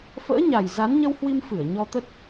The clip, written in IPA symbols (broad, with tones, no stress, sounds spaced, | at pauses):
f ə̰ː˧˥ ɲ a˨˩ j z a˨˦ n ɲ ə˧ w h w i˧ m f ɨ˧˩ ə̯ ɲ ɔ˧ t̪ ə˦˥ t̚